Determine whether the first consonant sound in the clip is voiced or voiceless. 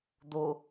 voiced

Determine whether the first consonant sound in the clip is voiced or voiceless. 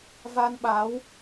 voiced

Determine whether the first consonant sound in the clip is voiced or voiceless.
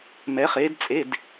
voiced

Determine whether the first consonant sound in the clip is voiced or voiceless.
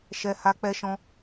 voiceless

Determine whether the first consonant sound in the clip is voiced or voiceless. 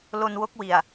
voiced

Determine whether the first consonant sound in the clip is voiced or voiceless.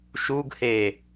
voiceless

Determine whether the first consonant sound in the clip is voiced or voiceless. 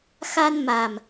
voiceless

